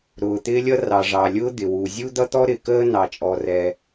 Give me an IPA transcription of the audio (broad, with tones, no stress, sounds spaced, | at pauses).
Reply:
ɾ ʊː˩ t̪ ɪː˥ lʲ ʌ˥ r ɑ˩ ʐ ɑ˩ lʲ ʊː˥ d̪ ɪ˩ w u˩ zʲ u˥ d̪ ʌ˥ t̪ ɔ˥ ɾ ɪ˩ k əː˥ n ɑ˩ t͡ʃʼ ɔ˩ r ɛ˩